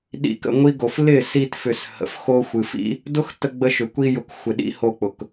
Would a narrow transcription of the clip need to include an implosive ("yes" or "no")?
yes